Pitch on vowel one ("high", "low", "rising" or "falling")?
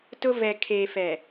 high